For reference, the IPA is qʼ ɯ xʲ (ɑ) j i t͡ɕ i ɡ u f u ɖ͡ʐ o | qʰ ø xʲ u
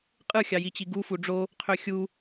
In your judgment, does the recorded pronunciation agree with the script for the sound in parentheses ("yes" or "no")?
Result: yes